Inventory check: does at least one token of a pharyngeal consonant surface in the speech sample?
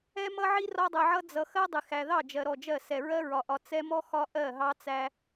yes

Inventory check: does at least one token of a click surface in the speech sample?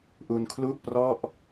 no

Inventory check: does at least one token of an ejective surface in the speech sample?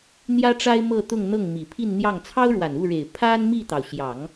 no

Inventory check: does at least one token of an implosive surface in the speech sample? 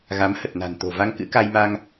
no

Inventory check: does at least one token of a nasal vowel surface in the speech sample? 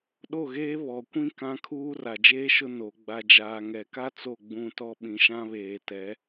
yes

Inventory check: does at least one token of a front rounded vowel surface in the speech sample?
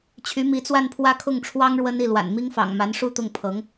yes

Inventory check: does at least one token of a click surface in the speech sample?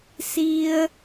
no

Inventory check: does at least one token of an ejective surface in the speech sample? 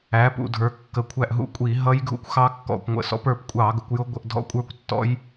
yes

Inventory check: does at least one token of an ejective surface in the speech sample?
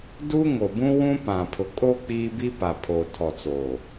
yes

